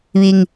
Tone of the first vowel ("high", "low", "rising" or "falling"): low